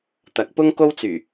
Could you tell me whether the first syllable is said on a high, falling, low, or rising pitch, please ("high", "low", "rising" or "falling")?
rising